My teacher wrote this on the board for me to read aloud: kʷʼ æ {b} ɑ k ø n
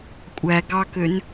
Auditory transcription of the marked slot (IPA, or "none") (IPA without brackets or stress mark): ɡ